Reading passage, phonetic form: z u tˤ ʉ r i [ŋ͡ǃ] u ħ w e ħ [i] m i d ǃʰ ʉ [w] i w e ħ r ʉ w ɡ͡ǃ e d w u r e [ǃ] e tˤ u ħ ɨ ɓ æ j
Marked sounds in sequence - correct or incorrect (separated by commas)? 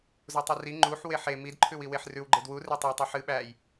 correct, incorrect, correct, incorrect